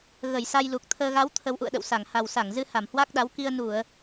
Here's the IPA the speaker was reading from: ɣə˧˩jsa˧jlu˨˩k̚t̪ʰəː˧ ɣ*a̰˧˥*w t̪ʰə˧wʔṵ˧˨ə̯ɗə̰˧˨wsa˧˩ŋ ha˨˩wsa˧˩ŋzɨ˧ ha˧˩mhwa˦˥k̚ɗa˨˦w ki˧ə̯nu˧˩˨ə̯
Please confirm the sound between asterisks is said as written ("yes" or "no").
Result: no